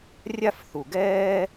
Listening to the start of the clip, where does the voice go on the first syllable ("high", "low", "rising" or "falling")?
falling